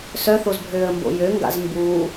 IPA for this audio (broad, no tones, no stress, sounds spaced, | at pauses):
s œ θ o z bʱ øː ə̯ m b o̰ j ø ŋ ɡ a̰ z m b uː